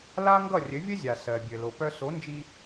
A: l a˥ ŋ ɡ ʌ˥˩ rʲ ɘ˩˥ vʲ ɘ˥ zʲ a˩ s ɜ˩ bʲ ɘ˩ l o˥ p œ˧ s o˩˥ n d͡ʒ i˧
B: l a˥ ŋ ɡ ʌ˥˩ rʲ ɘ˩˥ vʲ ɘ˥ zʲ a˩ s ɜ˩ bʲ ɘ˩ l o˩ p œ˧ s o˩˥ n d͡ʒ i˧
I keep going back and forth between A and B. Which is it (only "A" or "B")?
B